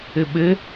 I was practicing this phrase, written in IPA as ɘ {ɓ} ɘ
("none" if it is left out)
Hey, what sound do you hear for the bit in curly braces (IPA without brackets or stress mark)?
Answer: ɓ